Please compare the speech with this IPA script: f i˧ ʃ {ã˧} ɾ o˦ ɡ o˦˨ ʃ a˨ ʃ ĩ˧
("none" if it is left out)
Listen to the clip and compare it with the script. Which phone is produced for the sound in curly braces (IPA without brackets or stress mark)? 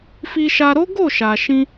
a˧